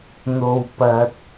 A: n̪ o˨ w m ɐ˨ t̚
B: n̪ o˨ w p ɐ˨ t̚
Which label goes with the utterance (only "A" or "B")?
B